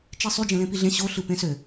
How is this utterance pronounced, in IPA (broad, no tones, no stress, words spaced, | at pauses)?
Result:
t͡ʃisˤy d͡ʒẽlẽpiɮẽ ɕo ɬɯpẽsø